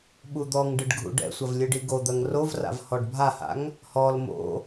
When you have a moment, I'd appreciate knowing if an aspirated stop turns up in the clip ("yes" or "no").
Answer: no